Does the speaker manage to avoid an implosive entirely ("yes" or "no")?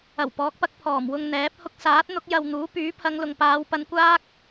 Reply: yes